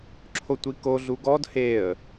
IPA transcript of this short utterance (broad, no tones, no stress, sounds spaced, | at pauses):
ǁʰ o tʷ i k o ɮ u ɡ ɔ d h e ə̯